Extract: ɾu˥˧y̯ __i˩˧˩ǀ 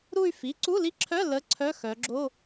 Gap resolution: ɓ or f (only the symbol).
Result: f